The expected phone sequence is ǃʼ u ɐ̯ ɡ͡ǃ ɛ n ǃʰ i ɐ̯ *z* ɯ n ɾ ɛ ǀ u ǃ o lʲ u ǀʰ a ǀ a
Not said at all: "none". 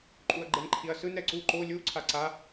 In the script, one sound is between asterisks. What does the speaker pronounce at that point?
s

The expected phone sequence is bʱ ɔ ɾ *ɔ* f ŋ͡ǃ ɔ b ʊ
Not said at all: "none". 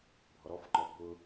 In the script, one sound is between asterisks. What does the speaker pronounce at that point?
ɔ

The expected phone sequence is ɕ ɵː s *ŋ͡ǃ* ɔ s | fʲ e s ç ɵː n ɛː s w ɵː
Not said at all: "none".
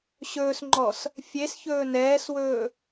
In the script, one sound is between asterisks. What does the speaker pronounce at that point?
ŋ͡ǃ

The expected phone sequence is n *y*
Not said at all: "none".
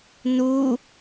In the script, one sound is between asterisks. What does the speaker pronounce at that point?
u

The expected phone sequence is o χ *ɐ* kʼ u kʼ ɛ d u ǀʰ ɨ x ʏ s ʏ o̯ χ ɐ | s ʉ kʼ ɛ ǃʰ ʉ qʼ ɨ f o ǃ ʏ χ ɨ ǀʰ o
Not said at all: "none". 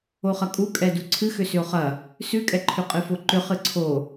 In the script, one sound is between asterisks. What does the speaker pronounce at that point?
ɐ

